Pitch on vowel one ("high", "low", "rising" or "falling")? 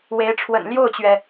rising